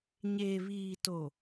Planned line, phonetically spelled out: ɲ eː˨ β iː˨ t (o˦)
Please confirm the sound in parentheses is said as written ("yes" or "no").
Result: no